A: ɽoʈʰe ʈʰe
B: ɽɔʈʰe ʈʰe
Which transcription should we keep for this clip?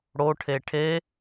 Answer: A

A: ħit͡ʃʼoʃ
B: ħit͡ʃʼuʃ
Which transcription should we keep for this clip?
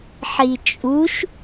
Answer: B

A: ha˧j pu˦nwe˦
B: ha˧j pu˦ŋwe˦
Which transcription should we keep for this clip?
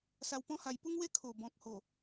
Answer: B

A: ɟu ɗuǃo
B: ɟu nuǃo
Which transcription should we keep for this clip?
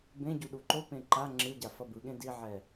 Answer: A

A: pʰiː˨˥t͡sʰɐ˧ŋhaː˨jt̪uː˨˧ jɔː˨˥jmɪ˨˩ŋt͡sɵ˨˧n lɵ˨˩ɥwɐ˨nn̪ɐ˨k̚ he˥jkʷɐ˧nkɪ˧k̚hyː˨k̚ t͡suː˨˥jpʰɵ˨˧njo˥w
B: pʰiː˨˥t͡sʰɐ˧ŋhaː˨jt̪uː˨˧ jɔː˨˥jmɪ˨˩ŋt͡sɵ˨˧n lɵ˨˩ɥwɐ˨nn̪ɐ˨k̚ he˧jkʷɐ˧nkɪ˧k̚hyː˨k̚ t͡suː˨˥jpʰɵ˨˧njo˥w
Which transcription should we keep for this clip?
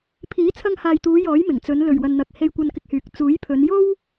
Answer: B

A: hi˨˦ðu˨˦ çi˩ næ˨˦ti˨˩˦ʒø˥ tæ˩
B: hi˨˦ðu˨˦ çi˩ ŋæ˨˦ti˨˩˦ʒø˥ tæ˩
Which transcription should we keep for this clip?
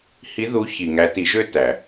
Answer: B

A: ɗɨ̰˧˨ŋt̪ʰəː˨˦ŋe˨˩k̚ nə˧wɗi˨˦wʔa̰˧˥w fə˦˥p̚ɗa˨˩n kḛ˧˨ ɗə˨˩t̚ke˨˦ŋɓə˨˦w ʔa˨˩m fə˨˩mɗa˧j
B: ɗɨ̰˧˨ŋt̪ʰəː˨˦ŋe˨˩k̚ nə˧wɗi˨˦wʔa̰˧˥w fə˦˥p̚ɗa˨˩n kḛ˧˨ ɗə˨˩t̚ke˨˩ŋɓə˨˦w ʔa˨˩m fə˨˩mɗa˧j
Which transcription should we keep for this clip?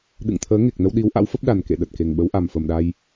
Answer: B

